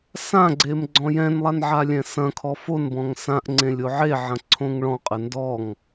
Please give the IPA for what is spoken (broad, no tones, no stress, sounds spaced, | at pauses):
s ã ɡ͡ǀ e m ɡ͡ǀ ɔ̃ j ɛ̃ n lˠ a n ʕ a lʲ ɛ̃ s ɐ̃ kʰ ɔ f o n b ɔ̃ ŋ s ã ʔ ŋ͡ǀ ẽ lʲ o ʕ e ʕ ɐ̃ ǀʰ õ ŋ ɭ ɔ̃ qʼ ɘ n d ɔ ŋ